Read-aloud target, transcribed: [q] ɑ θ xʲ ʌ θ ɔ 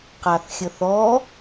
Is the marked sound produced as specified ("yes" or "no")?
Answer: yes